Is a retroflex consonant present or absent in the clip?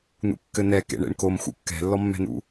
present